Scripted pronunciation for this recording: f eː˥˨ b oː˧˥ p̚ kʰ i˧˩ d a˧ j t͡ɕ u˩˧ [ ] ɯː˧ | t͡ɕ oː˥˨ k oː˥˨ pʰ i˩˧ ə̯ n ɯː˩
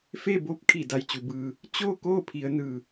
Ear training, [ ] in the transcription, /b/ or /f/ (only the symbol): b